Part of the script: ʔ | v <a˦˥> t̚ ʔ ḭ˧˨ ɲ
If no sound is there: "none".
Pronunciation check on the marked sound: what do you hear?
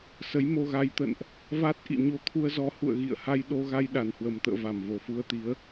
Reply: a˦˥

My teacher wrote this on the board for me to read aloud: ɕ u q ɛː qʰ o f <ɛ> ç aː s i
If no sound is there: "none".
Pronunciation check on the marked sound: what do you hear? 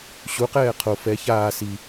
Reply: ɛ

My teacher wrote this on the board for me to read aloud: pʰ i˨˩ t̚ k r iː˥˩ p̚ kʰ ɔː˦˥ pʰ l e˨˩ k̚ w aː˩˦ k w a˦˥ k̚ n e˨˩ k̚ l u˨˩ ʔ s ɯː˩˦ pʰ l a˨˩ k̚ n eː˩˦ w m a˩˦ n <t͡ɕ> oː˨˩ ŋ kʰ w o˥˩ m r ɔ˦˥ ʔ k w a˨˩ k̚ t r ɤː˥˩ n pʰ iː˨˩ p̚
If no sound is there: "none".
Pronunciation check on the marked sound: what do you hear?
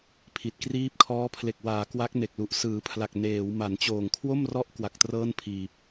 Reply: t͡ɕ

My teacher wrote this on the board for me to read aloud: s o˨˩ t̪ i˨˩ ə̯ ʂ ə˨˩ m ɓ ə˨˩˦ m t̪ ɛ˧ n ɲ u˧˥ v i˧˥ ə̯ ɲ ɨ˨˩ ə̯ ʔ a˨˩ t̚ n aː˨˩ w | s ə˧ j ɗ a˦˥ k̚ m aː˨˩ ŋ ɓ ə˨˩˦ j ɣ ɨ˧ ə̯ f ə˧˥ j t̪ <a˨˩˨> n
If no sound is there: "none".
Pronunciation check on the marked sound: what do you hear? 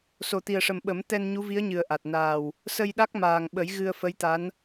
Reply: a˧˥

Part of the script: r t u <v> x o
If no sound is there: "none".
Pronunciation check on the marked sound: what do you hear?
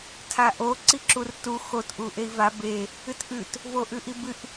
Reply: none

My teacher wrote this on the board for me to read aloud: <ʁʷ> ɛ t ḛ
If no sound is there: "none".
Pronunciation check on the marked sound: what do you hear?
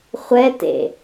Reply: χʷ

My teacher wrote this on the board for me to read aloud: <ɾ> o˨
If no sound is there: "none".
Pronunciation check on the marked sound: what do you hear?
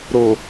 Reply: ɾ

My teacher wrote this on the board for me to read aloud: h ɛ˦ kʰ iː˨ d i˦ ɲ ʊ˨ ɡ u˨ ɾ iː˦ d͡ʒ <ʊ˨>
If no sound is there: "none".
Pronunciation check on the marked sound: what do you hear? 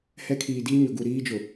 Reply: ʊ˨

